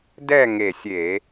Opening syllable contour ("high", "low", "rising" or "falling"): falling